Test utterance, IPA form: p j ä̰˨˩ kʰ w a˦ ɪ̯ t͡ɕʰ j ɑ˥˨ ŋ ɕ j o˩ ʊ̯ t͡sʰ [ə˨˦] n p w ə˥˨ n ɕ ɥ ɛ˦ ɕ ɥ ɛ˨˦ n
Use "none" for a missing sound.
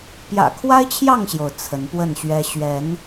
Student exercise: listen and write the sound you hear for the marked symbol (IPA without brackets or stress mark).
ə˨˦